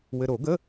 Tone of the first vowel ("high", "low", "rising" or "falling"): low